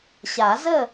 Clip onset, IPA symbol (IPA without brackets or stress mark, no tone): ɕ